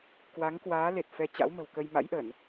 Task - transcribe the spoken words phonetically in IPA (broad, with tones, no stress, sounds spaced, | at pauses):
k w a˨˦ ŋ k w aː˨˦ l e˨˩ t̚ f ɛ˨˦ t͡ɕ a̰˧˥ w m ə̤˨˩ w k ə˧ j m a̰˧˥ j ʔ ə˧˩˨ n